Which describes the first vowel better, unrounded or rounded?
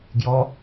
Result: rounded